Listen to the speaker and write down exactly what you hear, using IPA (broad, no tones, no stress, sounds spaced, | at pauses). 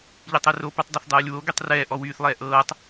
ʎ e tˤ e r o p y tˤ dˤ e θ dˤ ɤː lʲ w o ɡ y tˤ r ɛː ʔ ɔ w yː θ lˠ ɛː ʔ ɤː tˤ